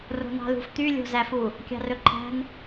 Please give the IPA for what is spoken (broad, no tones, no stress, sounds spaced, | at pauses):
r o̤ n ɑ̤ l ṳ f t̪ y lʲ o̤ z æ f u | kʲ ɑ̤ r ɵ ǃʰ æ̤ n